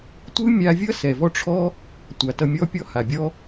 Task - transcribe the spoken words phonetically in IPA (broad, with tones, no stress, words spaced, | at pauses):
tʷɯ˦mʲa˧vʲʌ˦ sɛ˨vɔ˦ ʈ͡ʂʰɔ˦ | tʷa˨tʌ˧mʲɔ˦pʲɔ˦ ha˨bʲɔ˦